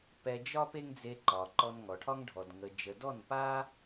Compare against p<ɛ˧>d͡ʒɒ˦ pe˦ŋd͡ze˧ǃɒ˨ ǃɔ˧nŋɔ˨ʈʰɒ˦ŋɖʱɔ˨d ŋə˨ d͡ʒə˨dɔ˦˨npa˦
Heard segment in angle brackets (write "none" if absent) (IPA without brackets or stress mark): ɛ˧